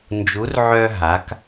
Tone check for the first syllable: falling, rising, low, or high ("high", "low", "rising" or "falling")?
rising